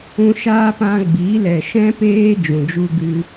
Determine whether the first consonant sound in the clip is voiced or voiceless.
voiceless